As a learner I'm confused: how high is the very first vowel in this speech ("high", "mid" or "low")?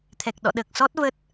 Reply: mid